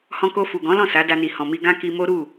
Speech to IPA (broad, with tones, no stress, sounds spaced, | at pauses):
h ɔ̃˧ k o˧ f u˨ ɡ ɔ̃˨˦ l ɔ̃˦˨ s a˨˦ d a˧ n i˨ h ɔ̃˨ m i˧ ɡ ã˦ k i˧ m o˦ ɾ u˦˨